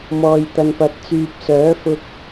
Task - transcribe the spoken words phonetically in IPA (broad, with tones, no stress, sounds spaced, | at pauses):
m ɔː˨ j t̪ ɐ˨ n p ɐ˨˥ t̚ t͡s yː˨ p̚ s œː˨˥ f ʊ˧ k̚